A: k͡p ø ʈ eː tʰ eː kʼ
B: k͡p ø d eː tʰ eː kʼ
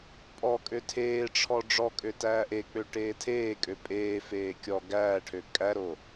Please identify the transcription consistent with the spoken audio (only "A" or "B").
A